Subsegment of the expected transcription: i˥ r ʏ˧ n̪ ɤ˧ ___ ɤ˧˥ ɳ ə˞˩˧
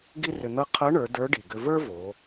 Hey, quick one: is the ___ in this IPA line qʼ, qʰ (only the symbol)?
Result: qʰ